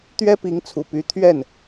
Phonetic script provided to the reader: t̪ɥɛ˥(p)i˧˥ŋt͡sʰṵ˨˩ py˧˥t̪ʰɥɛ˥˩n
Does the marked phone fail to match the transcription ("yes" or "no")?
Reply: no